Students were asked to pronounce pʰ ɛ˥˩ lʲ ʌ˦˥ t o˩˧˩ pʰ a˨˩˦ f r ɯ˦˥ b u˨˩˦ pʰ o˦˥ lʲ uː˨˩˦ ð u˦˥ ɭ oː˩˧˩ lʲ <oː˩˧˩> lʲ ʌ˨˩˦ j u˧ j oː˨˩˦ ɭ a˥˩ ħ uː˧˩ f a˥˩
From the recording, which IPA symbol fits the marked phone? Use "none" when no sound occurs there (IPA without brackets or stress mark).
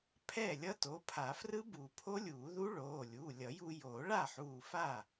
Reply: uː˩˧˩